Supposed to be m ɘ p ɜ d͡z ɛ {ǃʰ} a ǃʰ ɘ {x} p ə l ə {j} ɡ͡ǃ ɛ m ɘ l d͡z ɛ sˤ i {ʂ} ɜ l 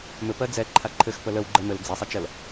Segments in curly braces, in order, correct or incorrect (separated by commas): correct, correct, incorrect, incorrect